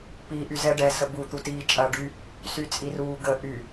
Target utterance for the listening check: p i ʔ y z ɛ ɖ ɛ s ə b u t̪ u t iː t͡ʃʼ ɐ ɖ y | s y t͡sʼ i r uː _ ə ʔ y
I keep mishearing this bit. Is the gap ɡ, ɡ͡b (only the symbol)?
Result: ɡ